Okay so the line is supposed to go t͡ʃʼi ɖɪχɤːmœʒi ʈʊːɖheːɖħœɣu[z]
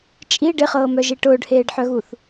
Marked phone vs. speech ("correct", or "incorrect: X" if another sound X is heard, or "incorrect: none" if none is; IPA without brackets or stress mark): incorrect: θ